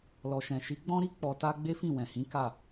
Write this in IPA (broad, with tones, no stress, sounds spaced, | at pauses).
l ɔ˨ ʃ ɛ̃˨ ʃ i˨˦ ɡ͡b ɔ̃˦ ɾ i˦ k͡p ɔ˧ t a˦ ɡ͡b e˦ f ĩ˦˨ w ɛ̃˨ h ĩ˨˦ k a˦˨